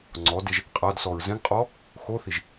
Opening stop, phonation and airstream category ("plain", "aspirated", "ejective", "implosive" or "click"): click